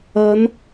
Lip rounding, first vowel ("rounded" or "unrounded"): unrounded